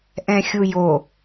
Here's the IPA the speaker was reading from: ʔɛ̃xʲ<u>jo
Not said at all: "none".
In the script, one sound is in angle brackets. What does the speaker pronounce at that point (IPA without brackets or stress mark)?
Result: u